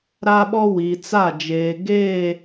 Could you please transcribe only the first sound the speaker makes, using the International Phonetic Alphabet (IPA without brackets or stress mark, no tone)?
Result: ɾ